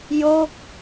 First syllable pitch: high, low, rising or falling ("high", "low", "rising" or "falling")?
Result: falling